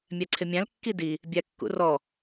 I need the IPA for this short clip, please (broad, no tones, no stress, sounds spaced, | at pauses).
mʲ æ ǀʰ ɪ mʲ æ̃ l kː i d i | bʲ æ kː ṵ r ɔ